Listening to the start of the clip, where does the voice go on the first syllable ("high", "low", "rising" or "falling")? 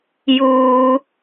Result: low